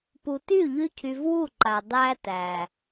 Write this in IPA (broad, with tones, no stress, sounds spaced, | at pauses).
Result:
p u˨ t y˦˨ ʎ y˦ cʰ y˧ v w u˦˨ ǃ a˨ dˤ æ˦ t æ˨